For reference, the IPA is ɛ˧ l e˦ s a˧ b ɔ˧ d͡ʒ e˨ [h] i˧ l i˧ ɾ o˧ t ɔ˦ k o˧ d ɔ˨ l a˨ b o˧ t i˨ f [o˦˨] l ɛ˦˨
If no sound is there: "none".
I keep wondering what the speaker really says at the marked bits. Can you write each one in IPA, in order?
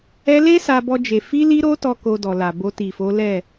f, o˨˦

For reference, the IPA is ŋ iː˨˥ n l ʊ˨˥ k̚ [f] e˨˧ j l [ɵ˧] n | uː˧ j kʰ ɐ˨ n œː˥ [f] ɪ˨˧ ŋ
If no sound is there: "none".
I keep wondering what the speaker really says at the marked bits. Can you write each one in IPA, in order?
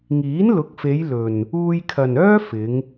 f, ɵ˨, f

